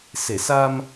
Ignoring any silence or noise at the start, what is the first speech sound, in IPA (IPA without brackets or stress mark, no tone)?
s